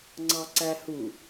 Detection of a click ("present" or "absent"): present